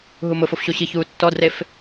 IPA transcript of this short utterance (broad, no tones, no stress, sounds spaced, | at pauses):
ɦ u m ʊ f o f ɕ o ɕ i ç uː tː ɔ d r e f